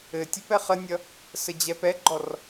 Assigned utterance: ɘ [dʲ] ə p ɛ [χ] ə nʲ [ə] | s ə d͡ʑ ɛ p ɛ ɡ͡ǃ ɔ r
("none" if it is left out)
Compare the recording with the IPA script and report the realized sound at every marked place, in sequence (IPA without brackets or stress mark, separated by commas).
tʲ, χ, ʌ